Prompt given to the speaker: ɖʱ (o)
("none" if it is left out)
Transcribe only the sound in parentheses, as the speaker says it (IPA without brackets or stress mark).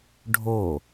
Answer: o